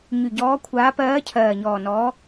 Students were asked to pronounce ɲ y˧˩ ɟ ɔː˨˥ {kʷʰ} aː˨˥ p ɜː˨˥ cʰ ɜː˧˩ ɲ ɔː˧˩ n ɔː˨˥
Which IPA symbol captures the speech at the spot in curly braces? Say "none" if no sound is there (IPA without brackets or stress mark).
kʷʰ